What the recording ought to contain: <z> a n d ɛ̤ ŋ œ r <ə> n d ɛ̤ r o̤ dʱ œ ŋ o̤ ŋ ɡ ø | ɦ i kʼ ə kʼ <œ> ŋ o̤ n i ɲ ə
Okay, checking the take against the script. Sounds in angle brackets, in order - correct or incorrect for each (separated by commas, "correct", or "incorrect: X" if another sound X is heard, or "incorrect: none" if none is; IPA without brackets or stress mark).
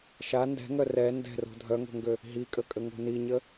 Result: incorrect: ʃ, incorrect: ɛ, incorrect: ə